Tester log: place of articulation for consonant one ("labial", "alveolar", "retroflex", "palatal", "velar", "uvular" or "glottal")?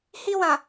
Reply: glottal